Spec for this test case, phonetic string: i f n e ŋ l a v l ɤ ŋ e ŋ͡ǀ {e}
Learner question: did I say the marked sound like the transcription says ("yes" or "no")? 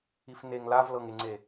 yes